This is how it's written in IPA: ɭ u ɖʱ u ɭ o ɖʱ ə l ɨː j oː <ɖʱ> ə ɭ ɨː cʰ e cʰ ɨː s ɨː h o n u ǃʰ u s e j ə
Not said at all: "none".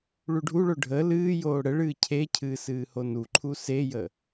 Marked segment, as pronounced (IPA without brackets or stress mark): ɽ